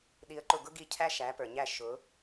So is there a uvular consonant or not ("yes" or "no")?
no